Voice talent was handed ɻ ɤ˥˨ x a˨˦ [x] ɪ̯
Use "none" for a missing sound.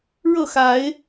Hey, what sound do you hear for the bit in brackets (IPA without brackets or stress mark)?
none